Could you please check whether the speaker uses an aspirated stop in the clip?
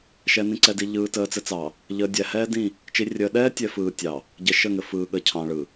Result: yes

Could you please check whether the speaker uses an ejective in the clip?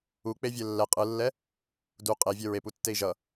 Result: yes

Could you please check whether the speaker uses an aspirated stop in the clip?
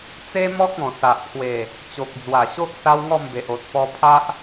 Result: yes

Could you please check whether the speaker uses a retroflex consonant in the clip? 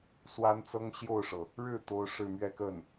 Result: yes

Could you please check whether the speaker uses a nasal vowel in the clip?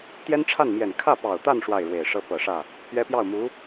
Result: no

